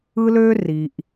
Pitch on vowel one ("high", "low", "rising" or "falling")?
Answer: high